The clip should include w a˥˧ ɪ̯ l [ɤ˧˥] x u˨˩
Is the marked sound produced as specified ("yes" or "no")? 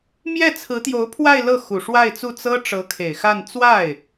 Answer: no